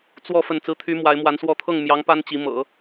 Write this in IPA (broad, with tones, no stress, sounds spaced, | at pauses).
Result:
t͡s w ɔ˥˧ f ə˥˩ n t͡s ɹ̩˥ t̪ʰ y˥ m w a˧˥ ɪ̯ m w a˧˥ n s w ɔ˥˧ t̪ʰ ɤ˥˩ ŋ m j ɑ˧˥ ŋ p a˥ n t͡ɕ i˧˥ m ɤ̰˨˩˦